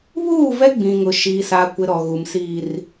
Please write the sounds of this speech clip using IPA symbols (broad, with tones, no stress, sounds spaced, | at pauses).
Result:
β uː˦˨ v ɛ˦ ɡ͡b ĩ˨ ŋ ʊ˨ ʃ i˦ s aː˦ kʷ ɪ˦ ɾ ɔ˨ ɣ u˨ m s iː˨ r